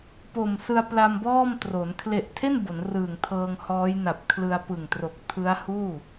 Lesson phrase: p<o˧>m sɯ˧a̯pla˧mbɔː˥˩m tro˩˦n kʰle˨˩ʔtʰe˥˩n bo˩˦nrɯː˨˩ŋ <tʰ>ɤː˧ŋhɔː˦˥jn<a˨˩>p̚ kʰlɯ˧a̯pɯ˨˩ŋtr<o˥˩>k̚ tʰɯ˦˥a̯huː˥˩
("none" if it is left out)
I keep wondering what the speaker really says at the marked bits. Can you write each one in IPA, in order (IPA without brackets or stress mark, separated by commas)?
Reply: o˨˩, tʰ, a˨˩, o˨˩